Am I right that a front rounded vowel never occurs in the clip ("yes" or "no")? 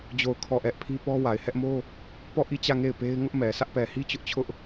yes